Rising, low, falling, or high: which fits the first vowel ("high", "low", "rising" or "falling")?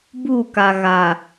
falling